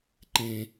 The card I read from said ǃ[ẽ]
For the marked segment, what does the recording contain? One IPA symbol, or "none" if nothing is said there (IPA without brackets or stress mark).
ẽ